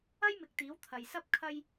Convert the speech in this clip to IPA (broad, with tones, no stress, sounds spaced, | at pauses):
ɐ˥ j m ɪ˨ k̚ t̪ iː˨˥ w t̪ʰ ɐ˨ j s ɐ˥ p̚ kʰ ɐ˥ j